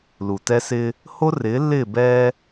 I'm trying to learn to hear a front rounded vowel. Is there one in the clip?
no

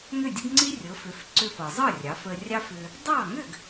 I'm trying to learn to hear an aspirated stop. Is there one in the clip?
no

